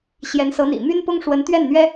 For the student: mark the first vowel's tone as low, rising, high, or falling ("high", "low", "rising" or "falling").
rising